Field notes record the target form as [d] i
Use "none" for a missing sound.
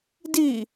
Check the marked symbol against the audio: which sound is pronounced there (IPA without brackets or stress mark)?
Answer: d